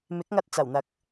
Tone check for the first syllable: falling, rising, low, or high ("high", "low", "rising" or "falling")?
rising